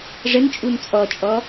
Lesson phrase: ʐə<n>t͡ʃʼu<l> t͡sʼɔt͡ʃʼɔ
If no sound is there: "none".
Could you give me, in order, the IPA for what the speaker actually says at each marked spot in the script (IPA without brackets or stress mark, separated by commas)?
n, n